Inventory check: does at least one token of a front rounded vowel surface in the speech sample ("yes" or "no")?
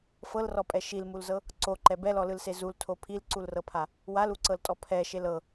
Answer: no